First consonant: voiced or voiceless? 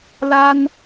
voiced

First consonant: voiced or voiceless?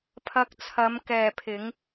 voiceless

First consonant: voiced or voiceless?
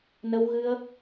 voiced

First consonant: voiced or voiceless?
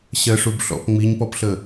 voiceless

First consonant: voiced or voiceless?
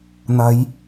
voiced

